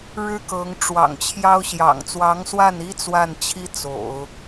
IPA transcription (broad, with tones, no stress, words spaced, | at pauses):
ɻɻ̩˥kɤ˧˥ŋ ʈ͡ʂwɑ̰˨˩ŋt͡ɕʰjɑ˥ʊ̯ ɕjɑ̰˨˩ŋt͡swɑ˧˥ŋswa˥˩ni˥ t͡swa˥˩nt͡ɕʰi˥ t͡so̰˨˩˦ʊ̯